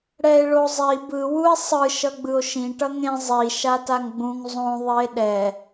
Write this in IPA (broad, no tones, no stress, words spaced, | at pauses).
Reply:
ɽɛe̯ɭozˤi bɯ wue̯sˤɯ ʃʌɡ͡bɯo̯ʃĩ ʈʌŋẽ zˤi ʃataŋɡ͡bũŋ zˤõ ðˤie̯ɗɛ